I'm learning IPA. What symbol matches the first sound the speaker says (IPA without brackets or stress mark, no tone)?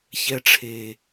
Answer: ç